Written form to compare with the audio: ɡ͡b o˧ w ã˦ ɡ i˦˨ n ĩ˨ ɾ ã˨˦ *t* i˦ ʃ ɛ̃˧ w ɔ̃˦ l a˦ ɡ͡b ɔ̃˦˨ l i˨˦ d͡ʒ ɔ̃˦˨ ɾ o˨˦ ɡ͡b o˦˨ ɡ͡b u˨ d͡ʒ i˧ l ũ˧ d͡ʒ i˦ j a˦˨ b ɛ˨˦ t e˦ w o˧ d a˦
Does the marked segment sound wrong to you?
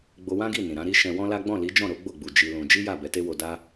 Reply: yes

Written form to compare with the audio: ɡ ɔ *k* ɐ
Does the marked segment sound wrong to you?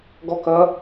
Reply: no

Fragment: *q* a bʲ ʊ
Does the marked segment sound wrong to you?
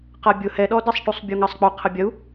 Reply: no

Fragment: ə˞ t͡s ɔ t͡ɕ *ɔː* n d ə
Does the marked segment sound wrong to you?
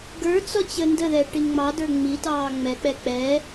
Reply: yes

